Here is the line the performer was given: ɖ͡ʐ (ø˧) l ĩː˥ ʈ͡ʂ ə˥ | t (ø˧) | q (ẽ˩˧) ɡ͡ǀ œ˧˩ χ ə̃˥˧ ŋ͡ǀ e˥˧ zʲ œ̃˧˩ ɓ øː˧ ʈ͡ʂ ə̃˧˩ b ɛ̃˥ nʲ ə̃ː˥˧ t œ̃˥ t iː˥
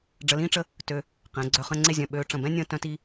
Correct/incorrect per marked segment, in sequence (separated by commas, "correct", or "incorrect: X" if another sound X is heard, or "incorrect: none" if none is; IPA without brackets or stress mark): incorrect: ə˧, correct, correct